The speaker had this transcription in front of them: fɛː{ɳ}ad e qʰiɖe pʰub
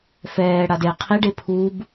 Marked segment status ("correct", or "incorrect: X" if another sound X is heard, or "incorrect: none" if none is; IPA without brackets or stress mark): incorrect: ɽ